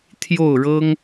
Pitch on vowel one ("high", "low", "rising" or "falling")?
falling